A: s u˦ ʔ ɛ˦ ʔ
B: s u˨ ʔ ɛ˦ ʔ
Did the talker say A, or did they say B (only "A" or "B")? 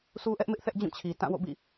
A